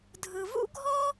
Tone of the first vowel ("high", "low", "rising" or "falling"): low